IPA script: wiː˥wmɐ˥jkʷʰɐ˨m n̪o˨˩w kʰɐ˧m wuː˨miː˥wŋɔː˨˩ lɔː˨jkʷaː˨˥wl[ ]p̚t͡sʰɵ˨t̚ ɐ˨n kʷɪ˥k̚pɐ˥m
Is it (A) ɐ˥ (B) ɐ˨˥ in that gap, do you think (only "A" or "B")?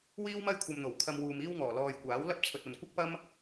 A